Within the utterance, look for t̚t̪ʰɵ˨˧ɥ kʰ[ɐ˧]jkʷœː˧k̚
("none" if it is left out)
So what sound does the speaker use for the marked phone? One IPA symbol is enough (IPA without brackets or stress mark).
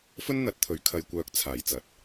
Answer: ɐ˧